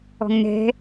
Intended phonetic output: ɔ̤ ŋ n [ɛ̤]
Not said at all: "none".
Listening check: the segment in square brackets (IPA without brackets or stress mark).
ɛ̤